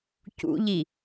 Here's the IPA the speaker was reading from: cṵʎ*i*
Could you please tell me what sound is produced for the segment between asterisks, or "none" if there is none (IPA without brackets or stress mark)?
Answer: i